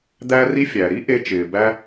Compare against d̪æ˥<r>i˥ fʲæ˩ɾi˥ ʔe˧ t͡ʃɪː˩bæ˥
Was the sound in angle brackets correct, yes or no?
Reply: yes